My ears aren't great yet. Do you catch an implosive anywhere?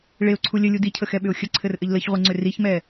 yes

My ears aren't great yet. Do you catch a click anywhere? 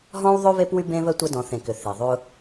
no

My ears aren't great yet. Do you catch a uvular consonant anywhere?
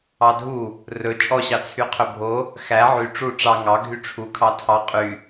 yes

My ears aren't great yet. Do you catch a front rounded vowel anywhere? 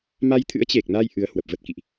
no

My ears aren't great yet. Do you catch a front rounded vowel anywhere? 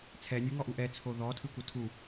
no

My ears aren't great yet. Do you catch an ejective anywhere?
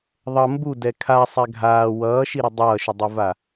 no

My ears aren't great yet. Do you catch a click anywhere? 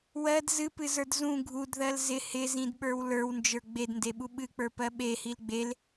no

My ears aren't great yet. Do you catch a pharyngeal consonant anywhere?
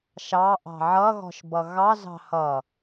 yes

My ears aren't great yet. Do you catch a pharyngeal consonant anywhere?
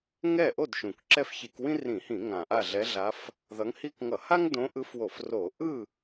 no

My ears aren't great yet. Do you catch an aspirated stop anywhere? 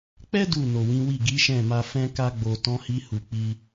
no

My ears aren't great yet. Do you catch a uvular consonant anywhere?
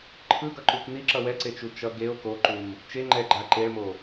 no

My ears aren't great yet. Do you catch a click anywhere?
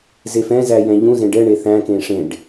no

